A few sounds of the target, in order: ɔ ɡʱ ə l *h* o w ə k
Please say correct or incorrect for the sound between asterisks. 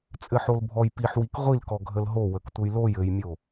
incorrect